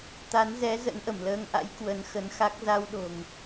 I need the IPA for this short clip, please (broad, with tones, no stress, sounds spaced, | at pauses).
t̪ a˨˦ n z ɛ˨˦ z ə̰˧˥ n ʔ ə˧˩ m l əː˧ ŋ ʔ a̰˧˥ j k w ə˨˦ n x ə˨˦ n x a˦˥ k̚ z a˧ w ɗ o̤˨˩ ŋ